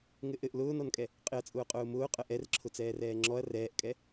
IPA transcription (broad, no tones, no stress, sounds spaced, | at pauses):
ŋ ɘ ʔ ɘ ʔ l ʊː n ɔ n kʼ ɛ | qʼ ɪ ɐ̯ t͡sʼ ʊː qʼ ʊː m ʊː qʼ ə ʔ ɛ r ǁʰ ʊ t͡s ɛː r ɛː ŋ͡ǁ ɔ ɐ̯ r ɛː ʔ kʼ ɛ